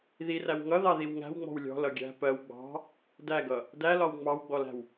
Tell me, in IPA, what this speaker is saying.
ð i r æ w ŋ ʌ ð ɑ ð i w ŋ æ̤ w ŋ͡m ɔ̤ w lʲ ɔ̤ l ʌ ɡʲ æ̤ p ɜ w ɡ͡b ɑ̤ | d æ ɡ ʌ | d æ l ɒ w ŋ͡m ɑ w ɡ͡b ɔ l æ̤ w

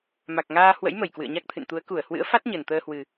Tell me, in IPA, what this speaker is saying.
m a˨˩ k̚ ŋ aː˧ h w ə̰˧˥ j m ə˧˩ j k w ɨ̰˧˨ ə̯ ɲ a˦˥ k̚ t̪ʰ ɨ̰˧˨ n t̪ u˨˦ ə̯ k u˧˩ ə̯ h w ɨ̰˧˥ ə̯ f a˦˥ t̚ ɲ ə˨˩ n t̪ əː˧ h w ɨ˨˩

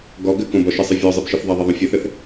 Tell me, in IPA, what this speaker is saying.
ɡ ɔ ɡ ɘ k õ b ɔ ʃ i sˤ ɨ vʲ ɔ zˤ i b ʃ ɨ θ ðˤ ɐ ðˤ ɘ ðˤ õ fʲ ɘ θ ɘ θ

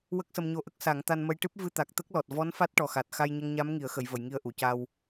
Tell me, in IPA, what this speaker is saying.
w ə˦˥ k̚ s ə˧ m ɲ o˧˥ ʔ ə˦˥ k̚ s a˨˩˦ ŋ t̪ a˧ n m ə˧ j ʈ ɨ˦˥ p̚ v ɨ˧ t̪ a˨˩ k̚ t̪ ə˦˥ k̚ l ɔ˨˩ t̚ v ɔ˧˥ n f a˦˥ t̚ ʈ ɔ˨˩ x a˨˩ t̚ x a˧ j ɲ ə˧ ŋ ɲ a˧˥ m ŋ i˨˩˨ ə̯ x ə˨˩˨ j v ə˨˩˨ j ŋ i˧ ə̯ ʔ u˨˩˨ c a˧ w

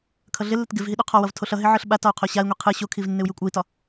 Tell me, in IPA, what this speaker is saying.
kʰ ʌ ɮ ɪ lː ɪ t ɡ ɪ v ɦ i ɗ u qʰ ɒ w ʌ v tʰ o ɬ ʌ ɦ ɪ ʕ ɯ ɬ ɓ a t ɒ u̯ qʰ o ɕ a i̯ ŋʷ i qʰ ɯ ɕ o kʰ i v nː ɪ u̯ j ɯ kʷʼ ʌ i̯ t ɒ

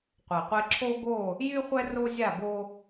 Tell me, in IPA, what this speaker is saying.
qʷ ɛ˨ qʷ e˦ ǁʰ o˦ ɡ o˦˨ | j y˦ χʷ ɛ˦ r o˦ zʲ a˦˨ b o˦

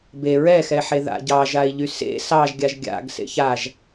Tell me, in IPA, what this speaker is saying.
b e ɹ ɛ x ɛ ħ e ð a̰ ɟ ɑ ʒ a i̯ ʎ y s ḛ s ɑ ʒ ɡʲ a ʒ ɡʲ a̰ ɡ s ḛ ç a ʒ

